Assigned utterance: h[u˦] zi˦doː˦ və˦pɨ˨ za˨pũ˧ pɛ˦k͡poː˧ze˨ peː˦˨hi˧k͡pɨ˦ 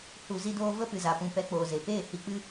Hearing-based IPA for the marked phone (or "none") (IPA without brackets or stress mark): u˨